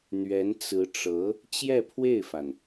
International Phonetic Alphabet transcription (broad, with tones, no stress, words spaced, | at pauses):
n̪ɥɛ˧˥n t͡sɹ̩˧˥ʈ͡ʂɤ˧˥ | t͡ɕjɛ˥˧pʰwe˥˩ɪ̯fa˩n